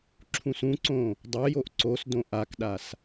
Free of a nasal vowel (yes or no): no